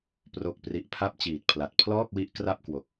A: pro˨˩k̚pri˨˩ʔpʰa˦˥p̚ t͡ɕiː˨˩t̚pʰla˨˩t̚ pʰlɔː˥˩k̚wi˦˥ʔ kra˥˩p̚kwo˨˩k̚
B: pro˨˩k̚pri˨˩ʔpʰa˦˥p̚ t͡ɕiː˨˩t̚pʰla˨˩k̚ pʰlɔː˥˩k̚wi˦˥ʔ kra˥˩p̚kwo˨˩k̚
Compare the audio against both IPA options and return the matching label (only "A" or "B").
A